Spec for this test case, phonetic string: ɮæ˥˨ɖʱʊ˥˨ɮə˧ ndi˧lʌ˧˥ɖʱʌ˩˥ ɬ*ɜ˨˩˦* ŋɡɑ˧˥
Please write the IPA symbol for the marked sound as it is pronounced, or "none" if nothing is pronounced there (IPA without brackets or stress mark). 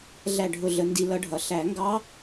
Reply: æ˨˩˦